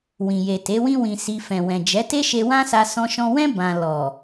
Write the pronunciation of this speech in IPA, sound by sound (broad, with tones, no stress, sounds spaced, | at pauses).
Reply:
w ĩ˨ j e˨ t e˨˦ w ĩ˦ w ĩ˧ s i˧ f ɛ̃˨ w ɛ̃˨ d͡ʒ ɛ˨˦ t e˦ ʃ e˧ w ã˦ s a˧ s ɔ̃˧ ʃ ɔ̃˧ w ɛ̃˦ b ã˧ l ɔ˨